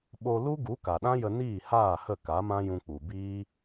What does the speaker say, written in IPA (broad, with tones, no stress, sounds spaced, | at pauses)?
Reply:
ɓ o˧ l u˦ ɡ u˨˦ k a˨ ɗ ã˦ j ə˧ n iː˦˨ h aː˦˨ h ə˦˨ k a˨˦ m ã˦ j ũ˧ k͡p u˨ b iː˦